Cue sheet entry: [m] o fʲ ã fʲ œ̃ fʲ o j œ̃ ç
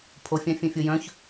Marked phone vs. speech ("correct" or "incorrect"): incorrect